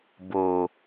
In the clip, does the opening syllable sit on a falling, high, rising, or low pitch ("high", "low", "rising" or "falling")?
low